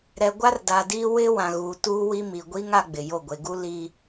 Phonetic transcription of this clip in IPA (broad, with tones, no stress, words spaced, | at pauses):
ɾɛ˨ɡʷa˦rda˨diː˦ wɪ˦wã˨ɣuː˨ tuː˦wi˦ mi˨ ɡʷi˦ŋ a˦ɡ͡bɪ˨ jo˦˨ɡʷe˨ɡu˦ li˦